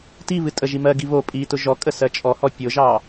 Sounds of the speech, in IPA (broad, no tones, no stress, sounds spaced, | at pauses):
t i β ɨ tʼ ə ʒ i m ɜ ɡ i β o pʼ i t ʊ ʒ ɔ kʼ ə s ɜ t͡ʃʼ ɔ h ɔ pʲ ʊ ʒ ɑ